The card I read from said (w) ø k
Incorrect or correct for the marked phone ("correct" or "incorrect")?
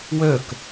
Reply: correct